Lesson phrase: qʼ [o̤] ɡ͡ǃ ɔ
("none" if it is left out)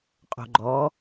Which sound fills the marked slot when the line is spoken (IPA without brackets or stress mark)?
o̤